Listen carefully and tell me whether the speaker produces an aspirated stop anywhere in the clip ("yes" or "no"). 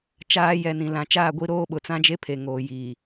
yes